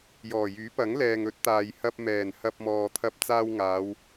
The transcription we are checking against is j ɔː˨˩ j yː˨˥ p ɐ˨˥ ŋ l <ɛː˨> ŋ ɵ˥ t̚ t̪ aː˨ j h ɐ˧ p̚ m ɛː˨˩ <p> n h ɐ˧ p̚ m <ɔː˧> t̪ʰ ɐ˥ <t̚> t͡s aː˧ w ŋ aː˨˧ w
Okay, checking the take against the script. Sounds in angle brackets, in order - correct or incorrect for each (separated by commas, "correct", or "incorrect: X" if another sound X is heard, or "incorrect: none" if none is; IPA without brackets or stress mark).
correct, incorrect: none, correct, incorrect: p̚